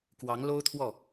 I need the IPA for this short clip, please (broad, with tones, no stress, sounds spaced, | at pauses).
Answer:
k w ɑ˧˥ ŋ l o˥ ʊ̯ t̪ʰ w ɔ˥˩